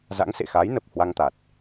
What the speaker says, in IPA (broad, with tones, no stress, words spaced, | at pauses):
za̰˧˥ŋsḛ˧˨xa˨˦jnə˨˩p̚ hwa˧ŋt̪a˨˩t̚